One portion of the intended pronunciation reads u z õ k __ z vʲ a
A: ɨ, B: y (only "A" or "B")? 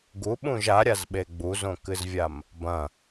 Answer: A